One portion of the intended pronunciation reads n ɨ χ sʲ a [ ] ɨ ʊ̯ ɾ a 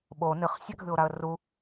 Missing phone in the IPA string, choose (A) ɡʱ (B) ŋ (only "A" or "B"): A